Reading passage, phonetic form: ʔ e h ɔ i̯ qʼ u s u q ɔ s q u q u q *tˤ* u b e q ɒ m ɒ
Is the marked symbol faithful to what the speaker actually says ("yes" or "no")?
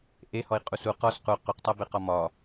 yes